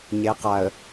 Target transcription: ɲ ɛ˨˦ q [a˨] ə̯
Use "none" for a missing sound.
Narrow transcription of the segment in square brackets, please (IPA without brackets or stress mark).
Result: a˨